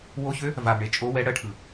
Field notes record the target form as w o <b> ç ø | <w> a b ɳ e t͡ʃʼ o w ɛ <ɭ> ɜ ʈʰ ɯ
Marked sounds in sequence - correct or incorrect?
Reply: incorrect: none, incorrect: v, incorrect: ɽ

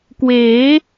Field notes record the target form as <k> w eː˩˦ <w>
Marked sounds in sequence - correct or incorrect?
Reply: correct, incorrect: none

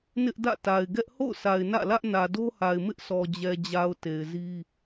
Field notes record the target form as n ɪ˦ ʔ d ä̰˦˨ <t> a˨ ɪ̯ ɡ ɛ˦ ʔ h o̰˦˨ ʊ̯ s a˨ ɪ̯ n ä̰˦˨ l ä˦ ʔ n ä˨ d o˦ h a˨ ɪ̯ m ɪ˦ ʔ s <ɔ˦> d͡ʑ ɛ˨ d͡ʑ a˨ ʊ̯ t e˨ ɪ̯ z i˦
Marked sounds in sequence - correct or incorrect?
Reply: correct, incorrect: ɔ˨

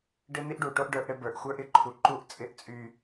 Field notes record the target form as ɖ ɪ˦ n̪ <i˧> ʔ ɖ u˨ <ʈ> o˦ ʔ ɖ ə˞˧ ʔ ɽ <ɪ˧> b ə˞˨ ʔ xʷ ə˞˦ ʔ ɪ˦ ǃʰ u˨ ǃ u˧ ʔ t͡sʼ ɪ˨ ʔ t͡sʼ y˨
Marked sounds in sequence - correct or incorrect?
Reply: incorrect: i˦, correct, correct

